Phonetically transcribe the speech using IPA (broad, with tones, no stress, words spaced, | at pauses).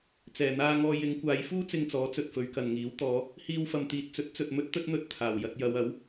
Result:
t͡sɛː˨˩n̪aː˧ŋɔː˧ jɪ˨˧ŋkʷaː˨˧jfuː˥ t͡sɪ˧ŋt͡sɔː˨˥t͡sɵ˨t̚ fɵ˨˧ɥkɐ˨nŋiː˨˥w t̪ɔː˨˧ | hiː˧wfɐ˨mt̪iː˨t̚ t͡sɵ˨˥t̚t͡sɵ˨t̚ mɵ˥t̚t̪ɵ˥t̚n̪ɵ˧t̚ t̪ʰaː˨˩w jɐ˧t̚jɐ˨˧wɐ˨˥w